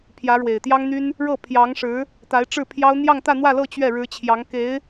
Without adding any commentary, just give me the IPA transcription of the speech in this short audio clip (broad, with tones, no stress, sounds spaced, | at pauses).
pʰ j ä˧˥ ɻ w e˨˩ ɪ̯ t̪ j ɑ˥ ŋ n̪ y˥ n | ɻ ɤ˥˩ pʰ j ɑ˧˥ ŋ ʂ ɻ̩˧˥ | t̪ a˧˥ ɪ̯ ʈ͡ʂ ɻ̩˥˩ pʰ j ɑ˥ ʊ̯ n̪ j ɑ˥˧ ŋ t̪ ä˥˧ n̪ w ä˥˧ l ɤ˥˧ t͡ɕ ɥ ɛ˥˩ ɻ ɻ̩˧˥ t͡ɕʰ j ɑ˧˥ ŋ k e˧˥ ɪ̯